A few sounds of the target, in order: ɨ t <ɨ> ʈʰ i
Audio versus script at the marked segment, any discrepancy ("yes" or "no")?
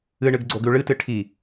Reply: no